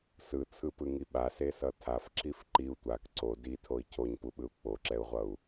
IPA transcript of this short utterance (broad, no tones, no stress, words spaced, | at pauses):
sɯt͡sʰɯpɯŋi ɓasesʌ tʰafǁif ǃiu̯ tʷak ǀo ditʰoi̯ cʰoɲpuɓɯu̯ k͡poǁɛu̯ʁʷʌu̯